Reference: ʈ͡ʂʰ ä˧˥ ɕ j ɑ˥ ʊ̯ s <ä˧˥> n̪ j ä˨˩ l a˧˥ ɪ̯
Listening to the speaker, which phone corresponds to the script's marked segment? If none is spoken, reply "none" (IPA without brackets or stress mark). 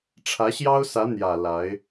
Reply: ä˧˥